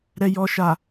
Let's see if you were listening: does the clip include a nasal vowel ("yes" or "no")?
no